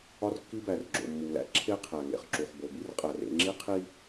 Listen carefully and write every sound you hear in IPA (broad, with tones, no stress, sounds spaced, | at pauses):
ɒ˦ r kː i˦ b æ˨ r ɡ͡ǁ o̰˨ mː u˨ l æ̰˦ ǁʰ e˦ qʰ æ˨ ŋ ḛ˨ χ ǁ u˨ χ b o˨ b i˦ r qʼ æ˨ r ḛ˦ ŋ͡ǁ i˦ qʰ i˦